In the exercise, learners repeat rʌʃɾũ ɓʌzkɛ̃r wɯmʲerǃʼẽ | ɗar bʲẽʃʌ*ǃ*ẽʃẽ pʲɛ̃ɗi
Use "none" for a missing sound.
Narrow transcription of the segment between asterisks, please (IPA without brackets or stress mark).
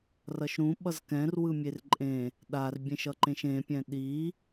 ǃ